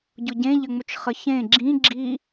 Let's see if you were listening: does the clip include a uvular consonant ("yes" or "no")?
yes